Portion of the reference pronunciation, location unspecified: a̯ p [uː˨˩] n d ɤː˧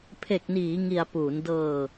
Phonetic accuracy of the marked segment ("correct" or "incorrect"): incorrect